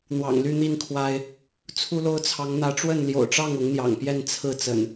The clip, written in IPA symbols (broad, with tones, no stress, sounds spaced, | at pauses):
n̪ w ɑ̰˨˩ ŋ l y˥˨ n̪ i˥˨ n kʰ w a˦ ɪ̯ | t͡sʰ u˦ l o˦ ʊ̯ t͡sʰ ɑ˨˦ ŋ n̪ ä˨˦ ʈ͡ʂ w ə˥˨ n l j o̰˨˩ ʊ̯ ʈ͡ʂ ɑ˥˨ ŋ ʊ˨˦ ŋ n̪ j ɑ̰˨˩ ŋ p j ɛ˥˨ n t͡sʰ ɹ̩˥˨ t͡s ə̰˨˩ n